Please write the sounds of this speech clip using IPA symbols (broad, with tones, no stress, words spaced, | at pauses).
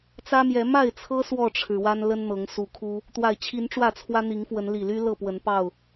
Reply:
t͡sä˦mjɛ˨˦ ma˥˨ɪ̯t͡sʰɤ˦ swɔ˥˨ʈ͡ʂʰɻ̩˩wa˦n lə˦nn̪ɤ˨˦ŋsu˨˦kʰu˦ | t̪wa˨˩ɪ̯t͡ɕʰi˨˦n ʈ͡ʂwä˥˨t͡sʰwä˦n̪i˨˦ŋfwə˨˦n li˨˩ly˦ lɤ˥˨pwə˨˦npɑ˥˨ʊ̯